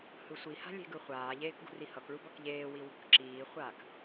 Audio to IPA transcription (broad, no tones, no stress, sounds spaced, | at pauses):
h ɯ sʷ i h a̤ lʲ e̤ ɡ ɯ χʷ aː ʎ eː k ɡ ṳ r i h ʌ k ɭ u b ʌ k ʎ eː w i w ṳ k ǁ iː χʷ aː k